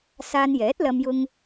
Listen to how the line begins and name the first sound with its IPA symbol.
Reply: s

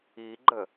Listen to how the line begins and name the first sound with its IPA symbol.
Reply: i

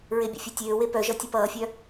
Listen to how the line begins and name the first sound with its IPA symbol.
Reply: ɹ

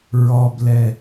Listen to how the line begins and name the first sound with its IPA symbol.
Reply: ɹ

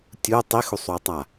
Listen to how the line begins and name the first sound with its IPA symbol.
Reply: tʲ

